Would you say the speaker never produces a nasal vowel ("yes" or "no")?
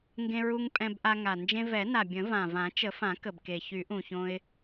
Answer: no